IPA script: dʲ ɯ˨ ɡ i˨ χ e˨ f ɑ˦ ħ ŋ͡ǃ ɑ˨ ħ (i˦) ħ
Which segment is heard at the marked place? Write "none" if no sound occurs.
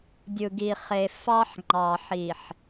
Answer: i˨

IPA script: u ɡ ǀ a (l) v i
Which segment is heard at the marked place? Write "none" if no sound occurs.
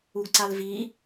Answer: l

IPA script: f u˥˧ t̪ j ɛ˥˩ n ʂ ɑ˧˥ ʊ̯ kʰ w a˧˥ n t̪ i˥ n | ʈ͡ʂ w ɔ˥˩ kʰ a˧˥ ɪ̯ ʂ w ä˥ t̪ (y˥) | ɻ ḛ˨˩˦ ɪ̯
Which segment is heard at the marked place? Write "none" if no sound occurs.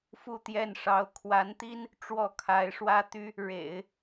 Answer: y˥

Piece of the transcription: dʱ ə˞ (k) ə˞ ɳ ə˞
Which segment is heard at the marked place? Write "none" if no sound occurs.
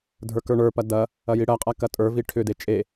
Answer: k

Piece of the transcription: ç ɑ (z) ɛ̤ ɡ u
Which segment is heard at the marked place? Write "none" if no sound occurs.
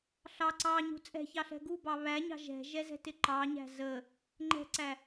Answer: ɬ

